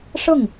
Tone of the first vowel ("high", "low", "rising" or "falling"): falling